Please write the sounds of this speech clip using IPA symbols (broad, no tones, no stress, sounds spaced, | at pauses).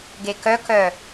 ɡ e k œ k œ